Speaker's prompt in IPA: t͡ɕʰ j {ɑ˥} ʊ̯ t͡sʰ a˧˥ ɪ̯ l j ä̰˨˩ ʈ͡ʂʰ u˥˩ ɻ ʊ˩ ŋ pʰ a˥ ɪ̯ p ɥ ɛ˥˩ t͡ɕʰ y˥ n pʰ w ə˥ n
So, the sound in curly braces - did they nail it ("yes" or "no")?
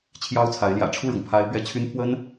yes